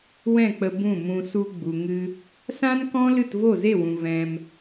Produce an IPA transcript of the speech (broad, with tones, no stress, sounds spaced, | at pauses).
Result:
w ɛ̃˦˨ k͡p ə˧ b ũ˦˨ m ũ˧ s u˧ ɡ͡b u˨ ŋ ɨ˦ | s ã˦ n k ɔ̃˦ l ɨ˦˨ t v o˦˨ z e˦˨ w ũ˨ v ɛ̃˧ m